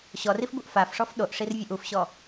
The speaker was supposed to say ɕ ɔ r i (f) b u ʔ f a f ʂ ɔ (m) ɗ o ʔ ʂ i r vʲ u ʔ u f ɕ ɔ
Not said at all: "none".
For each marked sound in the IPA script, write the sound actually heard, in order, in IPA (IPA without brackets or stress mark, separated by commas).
f, f